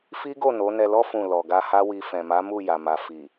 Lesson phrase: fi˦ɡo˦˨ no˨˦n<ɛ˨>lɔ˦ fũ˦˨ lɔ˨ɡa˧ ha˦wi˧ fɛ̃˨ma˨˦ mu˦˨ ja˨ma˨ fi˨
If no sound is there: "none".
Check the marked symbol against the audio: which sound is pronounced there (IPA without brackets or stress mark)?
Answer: ɛ˧